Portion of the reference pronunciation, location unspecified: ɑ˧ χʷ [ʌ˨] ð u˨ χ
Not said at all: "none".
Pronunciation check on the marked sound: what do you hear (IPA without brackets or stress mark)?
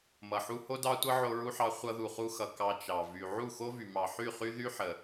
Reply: ʌ˧